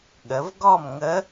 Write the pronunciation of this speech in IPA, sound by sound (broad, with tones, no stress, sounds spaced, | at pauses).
ɠ ə˩˧ v ɡ ɔ˥˨ m ŋ ə˧˥